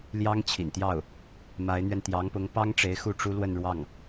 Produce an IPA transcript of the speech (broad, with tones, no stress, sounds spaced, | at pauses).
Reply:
l j ɑ˥ ŋ t͡ɕʰ ḭ˨˩ n t̪ j ɑ˥˩ ʊ̯ | m a˧˥ ɪ̯ n̪ ɥ ɛ˧ n t̪ j ɑ˧˥ ŋ p ʊ˧˥ ŋ p ɑ˥ ŋ ʈ͡ʂ e˧˥ ɪ̯ x u˥˩ ʈ͡ʂ u˥ l w ə˥˧ n ɻ w ɑ˥˩ ŋ